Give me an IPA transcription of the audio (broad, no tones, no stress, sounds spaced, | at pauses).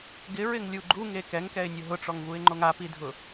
ɡ ɪ ɹ ɪ ŋ lʲ u ɡ͡ǃ u ŋ e k ɛ ŋ k ɛ ɪ̯ nʲ ʊ ɦ ʊ ʈ͡ʂ ɔ ŋ v u ɪ̯ ŋ͡ǃ o ŋ a p i dʱ ʊ